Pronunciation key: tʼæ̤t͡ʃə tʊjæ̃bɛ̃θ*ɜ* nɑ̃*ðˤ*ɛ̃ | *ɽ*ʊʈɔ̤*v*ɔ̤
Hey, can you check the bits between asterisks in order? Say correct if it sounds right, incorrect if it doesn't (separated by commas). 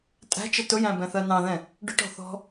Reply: correct, incorrect, incorrect, incorrect